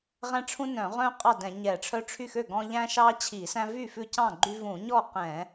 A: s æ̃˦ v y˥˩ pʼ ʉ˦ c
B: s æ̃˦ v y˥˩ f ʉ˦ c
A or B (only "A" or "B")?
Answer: B